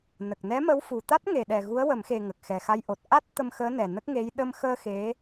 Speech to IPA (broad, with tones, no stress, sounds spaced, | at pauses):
n ə˨˩ k̚ n ɛ˧˥ m ə˧˥ w f u˨˩ t̪ a˦˥ t̚ ŋ e˨˩ ɗ ɛ˨˩ ɣ u˧˥ ə̯ w ə˨˩˦ m x e˨˩ ŋ ə˨˩ k̚ x ɛ˨˩ x a˧ j ʔ o˨˩ t̚ ʔ a˦˥ t̚ t̪ ə˧ m x əː˧˥ n ɛ˨˩ n ə˦˥ k̚ ŋ e˧˥ j ɗ ə˧ m x əː˧ x e˧˥